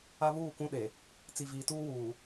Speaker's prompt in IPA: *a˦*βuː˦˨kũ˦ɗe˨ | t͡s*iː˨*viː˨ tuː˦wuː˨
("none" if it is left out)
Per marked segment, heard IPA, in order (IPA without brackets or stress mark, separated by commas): a˦, i˨